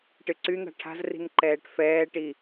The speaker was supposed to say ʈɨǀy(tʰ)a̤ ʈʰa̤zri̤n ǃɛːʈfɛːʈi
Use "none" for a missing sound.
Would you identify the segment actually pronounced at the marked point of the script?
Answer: n̪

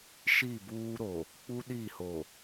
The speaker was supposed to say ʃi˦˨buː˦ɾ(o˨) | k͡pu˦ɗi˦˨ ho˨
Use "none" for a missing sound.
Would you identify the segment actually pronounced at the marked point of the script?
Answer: o˨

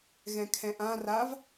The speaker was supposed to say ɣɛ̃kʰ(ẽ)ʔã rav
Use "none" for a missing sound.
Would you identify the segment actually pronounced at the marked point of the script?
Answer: ɛ̃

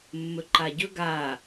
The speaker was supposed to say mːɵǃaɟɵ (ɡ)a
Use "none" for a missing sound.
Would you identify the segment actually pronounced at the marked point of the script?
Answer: ɡ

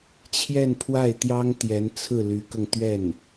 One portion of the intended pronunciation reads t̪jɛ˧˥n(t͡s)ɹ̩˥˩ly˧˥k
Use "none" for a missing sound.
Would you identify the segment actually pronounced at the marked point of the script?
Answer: t͡sʰ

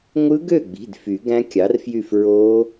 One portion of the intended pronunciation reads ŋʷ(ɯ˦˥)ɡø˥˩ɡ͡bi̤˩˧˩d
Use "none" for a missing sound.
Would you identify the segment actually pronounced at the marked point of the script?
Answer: ɯ˦˥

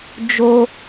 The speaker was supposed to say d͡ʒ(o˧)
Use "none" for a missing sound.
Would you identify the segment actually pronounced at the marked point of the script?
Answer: o˧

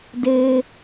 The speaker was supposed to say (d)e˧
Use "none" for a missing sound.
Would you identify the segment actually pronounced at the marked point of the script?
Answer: d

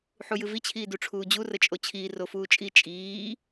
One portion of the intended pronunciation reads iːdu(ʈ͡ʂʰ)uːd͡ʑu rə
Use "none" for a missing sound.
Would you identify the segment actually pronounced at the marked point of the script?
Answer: ʈ͡ʂʰ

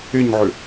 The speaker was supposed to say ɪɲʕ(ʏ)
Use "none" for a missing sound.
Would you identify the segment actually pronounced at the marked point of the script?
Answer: ʏ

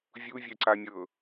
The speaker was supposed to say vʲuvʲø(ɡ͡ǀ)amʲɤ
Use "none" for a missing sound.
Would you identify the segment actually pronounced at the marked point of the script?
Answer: ǀ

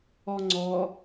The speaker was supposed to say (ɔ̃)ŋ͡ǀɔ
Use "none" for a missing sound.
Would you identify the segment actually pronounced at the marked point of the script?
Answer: ɔ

